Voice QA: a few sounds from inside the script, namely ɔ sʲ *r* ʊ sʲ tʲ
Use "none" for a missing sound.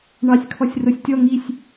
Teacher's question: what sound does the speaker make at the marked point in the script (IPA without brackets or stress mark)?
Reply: r